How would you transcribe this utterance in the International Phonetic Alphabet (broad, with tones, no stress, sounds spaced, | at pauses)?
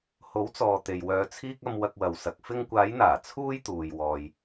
h o˨˥ w t͡s ɔː˨ t̪ e˨ j w œː˧ t͡sʰ iː˥ k̚ ɐ˧ m w ɐ˧ k̚ w ɐ˨ w s ɐ˨ k̚ f ɪ˧ ŋ kʷ aː˨˧ j n̪ aː˨˩ t͡sʰ uː˥ j t̪ uː˨ j w ɔː˨ j